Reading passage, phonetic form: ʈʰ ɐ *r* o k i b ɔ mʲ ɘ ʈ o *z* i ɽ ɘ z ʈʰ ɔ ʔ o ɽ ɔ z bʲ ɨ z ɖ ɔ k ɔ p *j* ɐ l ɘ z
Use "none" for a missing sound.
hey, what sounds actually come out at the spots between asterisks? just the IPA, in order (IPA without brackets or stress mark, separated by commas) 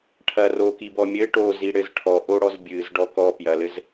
r, z, j